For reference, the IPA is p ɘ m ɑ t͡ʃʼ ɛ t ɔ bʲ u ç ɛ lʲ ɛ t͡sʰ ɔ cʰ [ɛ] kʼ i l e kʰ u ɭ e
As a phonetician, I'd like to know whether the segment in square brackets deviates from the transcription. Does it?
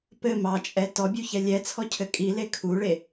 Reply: yes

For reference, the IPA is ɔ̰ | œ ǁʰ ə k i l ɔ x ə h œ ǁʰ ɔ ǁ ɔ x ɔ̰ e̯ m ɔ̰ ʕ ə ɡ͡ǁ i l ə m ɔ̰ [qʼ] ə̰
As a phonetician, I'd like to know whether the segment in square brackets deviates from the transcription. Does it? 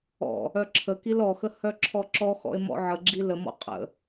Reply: no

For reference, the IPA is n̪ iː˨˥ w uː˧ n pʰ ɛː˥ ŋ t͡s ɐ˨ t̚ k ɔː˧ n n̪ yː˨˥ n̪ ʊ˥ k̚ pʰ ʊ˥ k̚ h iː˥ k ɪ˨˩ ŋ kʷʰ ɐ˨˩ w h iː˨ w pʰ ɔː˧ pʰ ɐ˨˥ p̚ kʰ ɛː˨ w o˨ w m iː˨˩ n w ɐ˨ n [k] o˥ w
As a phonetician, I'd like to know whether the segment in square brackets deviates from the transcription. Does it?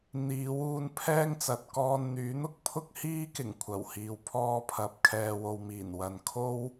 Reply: yes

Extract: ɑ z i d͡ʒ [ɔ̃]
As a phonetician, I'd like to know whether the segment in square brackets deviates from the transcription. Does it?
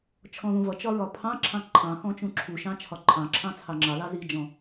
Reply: no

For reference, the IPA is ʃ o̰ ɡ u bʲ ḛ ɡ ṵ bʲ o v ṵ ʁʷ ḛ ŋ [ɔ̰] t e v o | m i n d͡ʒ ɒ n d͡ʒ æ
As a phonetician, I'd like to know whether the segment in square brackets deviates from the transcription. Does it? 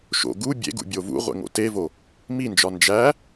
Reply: yes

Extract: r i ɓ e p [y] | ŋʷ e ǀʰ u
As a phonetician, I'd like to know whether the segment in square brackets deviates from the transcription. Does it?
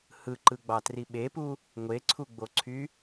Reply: yes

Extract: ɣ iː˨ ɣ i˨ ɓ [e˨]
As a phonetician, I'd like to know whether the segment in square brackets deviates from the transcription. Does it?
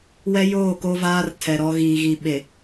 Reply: no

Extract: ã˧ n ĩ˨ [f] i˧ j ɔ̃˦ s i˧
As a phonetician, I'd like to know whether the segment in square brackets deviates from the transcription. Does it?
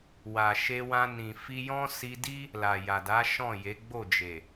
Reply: no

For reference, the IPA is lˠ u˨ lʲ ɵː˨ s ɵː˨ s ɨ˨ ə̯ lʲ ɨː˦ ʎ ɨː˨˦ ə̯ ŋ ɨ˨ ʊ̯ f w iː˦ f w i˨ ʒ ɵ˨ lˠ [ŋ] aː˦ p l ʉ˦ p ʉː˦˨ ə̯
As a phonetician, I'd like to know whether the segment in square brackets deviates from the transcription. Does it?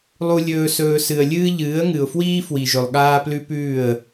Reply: yes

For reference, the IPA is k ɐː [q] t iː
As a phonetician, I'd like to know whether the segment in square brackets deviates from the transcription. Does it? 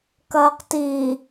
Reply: no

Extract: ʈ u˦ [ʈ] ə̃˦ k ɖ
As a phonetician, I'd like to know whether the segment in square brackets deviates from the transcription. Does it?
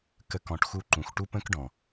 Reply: yes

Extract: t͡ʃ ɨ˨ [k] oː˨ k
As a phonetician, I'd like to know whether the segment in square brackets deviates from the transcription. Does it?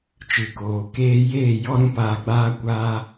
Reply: no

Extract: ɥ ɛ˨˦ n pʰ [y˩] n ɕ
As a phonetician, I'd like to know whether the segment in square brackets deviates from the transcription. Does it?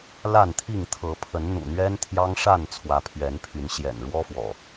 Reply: yes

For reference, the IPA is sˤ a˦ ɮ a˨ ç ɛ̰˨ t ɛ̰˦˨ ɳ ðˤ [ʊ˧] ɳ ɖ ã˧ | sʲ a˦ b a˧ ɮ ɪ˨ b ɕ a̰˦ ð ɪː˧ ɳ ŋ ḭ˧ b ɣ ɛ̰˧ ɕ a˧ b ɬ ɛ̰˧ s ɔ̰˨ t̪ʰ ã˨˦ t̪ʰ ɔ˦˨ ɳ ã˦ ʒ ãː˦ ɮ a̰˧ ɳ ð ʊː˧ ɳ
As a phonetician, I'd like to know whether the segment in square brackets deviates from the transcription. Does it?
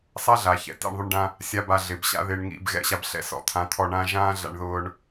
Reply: no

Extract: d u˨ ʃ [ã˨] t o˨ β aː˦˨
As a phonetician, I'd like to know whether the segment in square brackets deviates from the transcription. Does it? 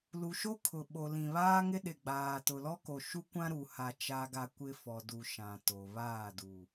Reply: no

